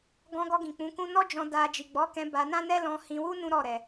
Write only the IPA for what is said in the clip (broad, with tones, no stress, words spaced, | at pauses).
ɡɔ̃˧ɡɔ˧ɡĩ˨ k͡pũ˨˦kũ˦ nɔ˦d͡ʒɔ̃˧ da˧ d͡ʒi˨ɡ͡bɔ˨˦kɛ̃˧ ba˧nã˦nɛ˦ lɔ̃˧hĩ˧wu˦ nũ˦ɾɔ˦˨ ɾɛ˧